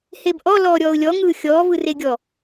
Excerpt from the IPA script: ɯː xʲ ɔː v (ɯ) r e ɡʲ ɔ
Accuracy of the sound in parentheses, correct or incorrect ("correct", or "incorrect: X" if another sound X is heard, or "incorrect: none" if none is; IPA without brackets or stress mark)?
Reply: correct